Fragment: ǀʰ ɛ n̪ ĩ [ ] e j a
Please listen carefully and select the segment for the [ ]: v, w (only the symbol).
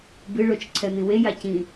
w